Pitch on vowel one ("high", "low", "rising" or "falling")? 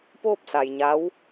falling